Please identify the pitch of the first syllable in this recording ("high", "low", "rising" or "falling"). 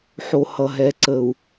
low